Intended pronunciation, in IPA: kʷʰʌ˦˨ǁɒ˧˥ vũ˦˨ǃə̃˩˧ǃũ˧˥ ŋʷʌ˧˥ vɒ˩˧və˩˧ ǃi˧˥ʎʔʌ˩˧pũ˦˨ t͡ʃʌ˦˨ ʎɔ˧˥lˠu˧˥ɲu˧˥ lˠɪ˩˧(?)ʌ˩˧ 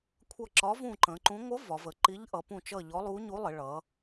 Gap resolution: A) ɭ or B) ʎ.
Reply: A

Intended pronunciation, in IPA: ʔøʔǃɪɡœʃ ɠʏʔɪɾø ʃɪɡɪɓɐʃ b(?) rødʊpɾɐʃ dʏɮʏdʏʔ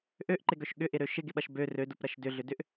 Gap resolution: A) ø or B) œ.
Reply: A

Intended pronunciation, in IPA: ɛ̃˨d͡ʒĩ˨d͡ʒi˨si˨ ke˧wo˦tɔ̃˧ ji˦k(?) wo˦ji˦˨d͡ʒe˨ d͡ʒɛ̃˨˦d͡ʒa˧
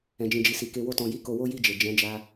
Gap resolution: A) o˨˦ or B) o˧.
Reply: B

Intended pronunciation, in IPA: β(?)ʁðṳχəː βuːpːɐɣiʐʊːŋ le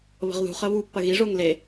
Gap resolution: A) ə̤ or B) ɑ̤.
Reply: A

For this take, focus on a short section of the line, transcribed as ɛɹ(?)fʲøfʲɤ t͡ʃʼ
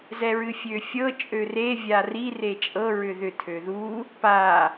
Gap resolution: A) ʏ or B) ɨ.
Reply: B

